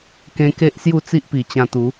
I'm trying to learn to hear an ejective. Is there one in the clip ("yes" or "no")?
no